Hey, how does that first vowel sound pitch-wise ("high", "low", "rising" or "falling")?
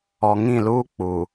low